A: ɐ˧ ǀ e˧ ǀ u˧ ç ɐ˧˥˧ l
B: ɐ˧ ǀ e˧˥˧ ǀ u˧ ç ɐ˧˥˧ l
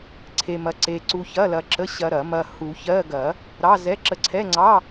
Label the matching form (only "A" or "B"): A